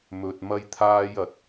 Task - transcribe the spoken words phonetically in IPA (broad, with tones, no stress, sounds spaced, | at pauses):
m ɵ˨ t̚ m ɐ˥ j t̪ʰ aː˥ j ɐ˨˥ t̚